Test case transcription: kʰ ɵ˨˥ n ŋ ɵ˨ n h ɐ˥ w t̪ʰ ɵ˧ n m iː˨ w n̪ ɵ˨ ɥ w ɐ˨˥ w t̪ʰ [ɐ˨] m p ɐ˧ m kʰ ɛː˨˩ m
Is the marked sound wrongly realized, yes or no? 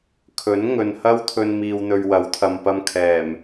no